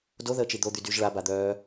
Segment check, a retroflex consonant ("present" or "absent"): present